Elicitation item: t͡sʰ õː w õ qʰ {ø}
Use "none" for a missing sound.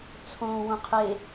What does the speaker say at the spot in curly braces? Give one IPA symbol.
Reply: e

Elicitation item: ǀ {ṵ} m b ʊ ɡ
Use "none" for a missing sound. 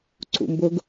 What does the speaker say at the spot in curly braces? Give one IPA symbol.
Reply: ṵ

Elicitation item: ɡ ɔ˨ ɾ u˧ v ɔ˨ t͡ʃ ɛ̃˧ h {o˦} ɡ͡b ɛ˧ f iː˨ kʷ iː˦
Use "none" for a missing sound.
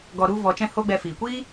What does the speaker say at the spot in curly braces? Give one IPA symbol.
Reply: o˦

